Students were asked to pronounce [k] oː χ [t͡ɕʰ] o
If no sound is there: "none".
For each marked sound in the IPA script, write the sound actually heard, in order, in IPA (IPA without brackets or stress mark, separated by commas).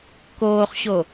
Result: k, ɕ